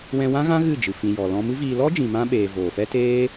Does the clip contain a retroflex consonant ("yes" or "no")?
no